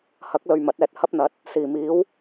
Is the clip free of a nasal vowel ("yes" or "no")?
yes